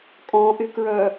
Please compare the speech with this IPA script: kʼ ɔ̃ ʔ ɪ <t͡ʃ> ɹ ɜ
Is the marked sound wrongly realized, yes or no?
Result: yes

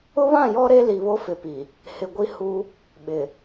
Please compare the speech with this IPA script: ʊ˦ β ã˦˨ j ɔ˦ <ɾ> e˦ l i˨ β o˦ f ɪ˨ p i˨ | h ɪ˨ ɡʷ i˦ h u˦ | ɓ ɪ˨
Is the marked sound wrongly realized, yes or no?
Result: no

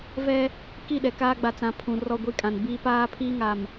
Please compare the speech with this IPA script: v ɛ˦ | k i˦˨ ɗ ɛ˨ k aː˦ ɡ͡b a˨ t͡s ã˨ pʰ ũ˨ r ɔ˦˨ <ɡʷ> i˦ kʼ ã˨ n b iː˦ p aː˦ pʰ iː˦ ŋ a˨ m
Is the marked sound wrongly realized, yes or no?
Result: no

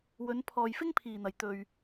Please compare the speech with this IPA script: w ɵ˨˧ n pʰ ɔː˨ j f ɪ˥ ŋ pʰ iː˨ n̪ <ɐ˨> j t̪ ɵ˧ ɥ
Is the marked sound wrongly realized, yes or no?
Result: no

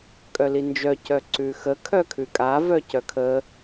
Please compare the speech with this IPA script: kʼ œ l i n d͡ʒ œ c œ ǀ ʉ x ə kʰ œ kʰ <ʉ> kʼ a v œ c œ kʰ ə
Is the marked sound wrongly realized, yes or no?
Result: no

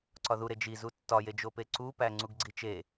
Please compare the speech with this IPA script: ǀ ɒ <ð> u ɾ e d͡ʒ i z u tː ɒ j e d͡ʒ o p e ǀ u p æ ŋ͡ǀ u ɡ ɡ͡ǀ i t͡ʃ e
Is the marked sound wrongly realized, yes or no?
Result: no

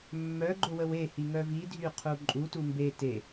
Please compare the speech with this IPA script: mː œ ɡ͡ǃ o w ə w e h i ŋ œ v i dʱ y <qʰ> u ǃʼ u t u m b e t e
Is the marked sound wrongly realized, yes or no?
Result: no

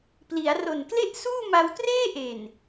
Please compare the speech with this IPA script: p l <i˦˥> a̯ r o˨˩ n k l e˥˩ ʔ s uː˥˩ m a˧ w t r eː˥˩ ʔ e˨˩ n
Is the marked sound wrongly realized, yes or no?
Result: yes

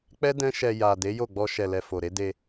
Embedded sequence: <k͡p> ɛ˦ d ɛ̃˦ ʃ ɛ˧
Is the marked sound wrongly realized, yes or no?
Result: no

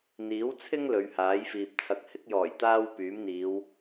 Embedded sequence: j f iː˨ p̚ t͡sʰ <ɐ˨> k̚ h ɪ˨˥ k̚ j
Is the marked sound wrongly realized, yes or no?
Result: no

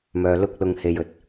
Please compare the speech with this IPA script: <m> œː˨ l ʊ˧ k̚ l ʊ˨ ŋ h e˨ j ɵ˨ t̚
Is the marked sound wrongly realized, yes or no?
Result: no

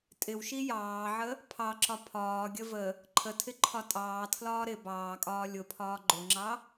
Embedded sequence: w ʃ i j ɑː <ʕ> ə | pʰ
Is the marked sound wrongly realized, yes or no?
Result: no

